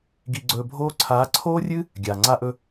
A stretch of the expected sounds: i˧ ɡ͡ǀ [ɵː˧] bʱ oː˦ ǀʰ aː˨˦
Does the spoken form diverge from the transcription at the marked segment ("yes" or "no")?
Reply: no